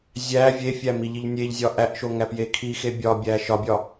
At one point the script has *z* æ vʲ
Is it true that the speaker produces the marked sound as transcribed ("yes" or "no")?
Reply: no